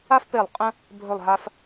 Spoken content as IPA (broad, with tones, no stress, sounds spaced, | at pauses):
a˥ f p e˧˩ lˠ qʼ ə̃˥ | bʱ ɵ˧˩ lˠ ɦ a˧ f